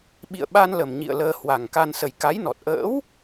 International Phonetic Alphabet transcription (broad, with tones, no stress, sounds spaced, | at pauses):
ɓ ḭ˧˨ ə̯ ɓ a˧ n l ə˨˩ m ɲ ḭ˧˨ ə̯ l əː˧ h w a˨˩ ŋ k a˧ n s ə˨˩ j k a˨˦ j n ɔ˨˩ t̚ ʔ ə̰ː˧˥ w